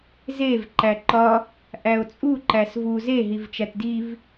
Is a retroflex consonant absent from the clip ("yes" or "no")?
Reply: yes